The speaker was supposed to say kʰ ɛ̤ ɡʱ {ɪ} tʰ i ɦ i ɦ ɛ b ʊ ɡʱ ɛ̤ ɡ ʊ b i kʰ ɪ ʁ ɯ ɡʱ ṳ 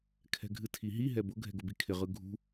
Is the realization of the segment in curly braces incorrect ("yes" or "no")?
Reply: yes